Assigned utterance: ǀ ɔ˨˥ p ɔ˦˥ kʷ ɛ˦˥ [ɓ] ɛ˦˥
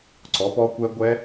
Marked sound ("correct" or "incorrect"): incorrect